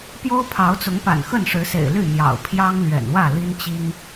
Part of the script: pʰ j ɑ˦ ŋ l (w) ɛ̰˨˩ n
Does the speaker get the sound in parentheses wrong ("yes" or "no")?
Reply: yes